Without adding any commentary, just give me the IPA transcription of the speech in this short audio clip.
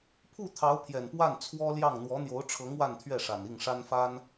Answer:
pʰu˥˩ t̪ʰɑ˧˥ʊ̯pʰjɛ˨˩n pwa˥˩nt͡sʰwɔ˥ljɑ˥˩ŋ n̪wɔ˧˥n̪jo˧˥ʊ̯ʈ͡ʂʰɤ˧˥ŋ wa˥˧nt̪ʰɥɛ˥˩ʂa˨˩n i˥˩ŋʂa˥nfa˥n

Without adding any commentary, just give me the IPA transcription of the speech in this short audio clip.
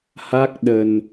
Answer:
ha˦˥k̚ɗə˨˩n

